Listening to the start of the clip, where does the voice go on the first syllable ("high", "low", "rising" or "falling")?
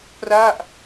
falling